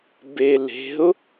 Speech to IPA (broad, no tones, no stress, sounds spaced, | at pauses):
b e l e̤ ʊ̯